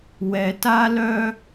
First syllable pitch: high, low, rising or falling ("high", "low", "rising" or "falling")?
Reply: low